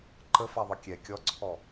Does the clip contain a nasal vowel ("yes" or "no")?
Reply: no